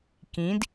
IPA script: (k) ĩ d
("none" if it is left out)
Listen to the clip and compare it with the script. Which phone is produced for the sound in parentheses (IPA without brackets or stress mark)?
k